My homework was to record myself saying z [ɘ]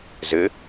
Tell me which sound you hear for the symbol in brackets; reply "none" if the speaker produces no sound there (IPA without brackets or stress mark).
ɘ